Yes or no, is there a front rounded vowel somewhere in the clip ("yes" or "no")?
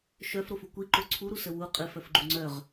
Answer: yes